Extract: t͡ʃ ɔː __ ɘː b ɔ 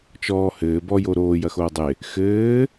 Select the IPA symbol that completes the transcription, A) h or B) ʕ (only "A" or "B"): A